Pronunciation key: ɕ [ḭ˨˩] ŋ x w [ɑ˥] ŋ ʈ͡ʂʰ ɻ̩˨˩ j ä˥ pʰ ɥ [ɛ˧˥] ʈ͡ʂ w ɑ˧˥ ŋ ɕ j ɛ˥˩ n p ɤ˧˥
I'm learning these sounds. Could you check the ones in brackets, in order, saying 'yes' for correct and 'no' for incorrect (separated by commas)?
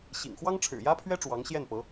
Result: yes, yes, no